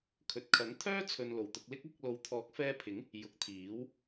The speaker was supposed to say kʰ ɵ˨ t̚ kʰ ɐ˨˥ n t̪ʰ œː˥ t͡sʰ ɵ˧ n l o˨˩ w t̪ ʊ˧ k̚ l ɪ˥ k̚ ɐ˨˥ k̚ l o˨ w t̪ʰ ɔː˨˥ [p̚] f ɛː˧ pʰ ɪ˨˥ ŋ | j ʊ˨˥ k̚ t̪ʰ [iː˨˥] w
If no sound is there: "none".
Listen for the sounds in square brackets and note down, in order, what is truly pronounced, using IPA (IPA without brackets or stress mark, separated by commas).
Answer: k̚, iː˨˥